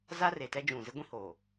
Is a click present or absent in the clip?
absent